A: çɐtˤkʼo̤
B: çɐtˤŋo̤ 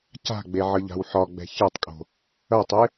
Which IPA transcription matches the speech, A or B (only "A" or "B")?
A